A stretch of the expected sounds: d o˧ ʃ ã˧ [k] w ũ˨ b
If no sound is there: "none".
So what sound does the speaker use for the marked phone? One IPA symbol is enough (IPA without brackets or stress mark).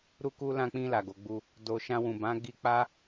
none